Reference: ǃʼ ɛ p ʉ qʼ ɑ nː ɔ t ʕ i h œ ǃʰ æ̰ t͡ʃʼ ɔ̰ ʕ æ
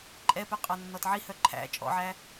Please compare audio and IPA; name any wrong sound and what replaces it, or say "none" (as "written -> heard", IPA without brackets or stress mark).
none